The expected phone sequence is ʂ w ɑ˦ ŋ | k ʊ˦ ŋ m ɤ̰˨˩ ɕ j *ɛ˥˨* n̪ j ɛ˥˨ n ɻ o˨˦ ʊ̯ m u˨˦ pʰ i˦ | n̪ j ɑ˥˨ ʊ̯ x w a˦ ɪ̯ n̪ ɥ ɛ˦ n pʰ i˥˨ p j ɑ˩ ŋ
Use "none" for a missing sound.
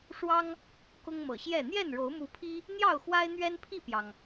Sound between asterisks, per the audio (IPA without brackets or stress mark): ɛ˥˨